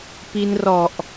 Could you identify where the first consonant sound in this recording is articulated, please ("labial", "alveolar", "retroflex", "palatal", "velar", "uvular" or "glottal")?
labial